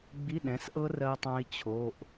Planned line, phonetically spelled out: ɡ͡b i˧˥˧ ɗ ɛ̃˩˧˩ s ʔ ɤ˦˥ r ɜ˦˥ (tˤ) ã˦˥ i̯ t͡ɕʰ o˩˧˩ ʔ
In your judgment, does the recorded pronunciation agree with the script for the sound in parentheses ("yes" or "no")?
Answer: yes